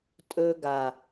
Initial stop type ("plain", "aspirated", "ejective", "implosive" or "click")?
ejective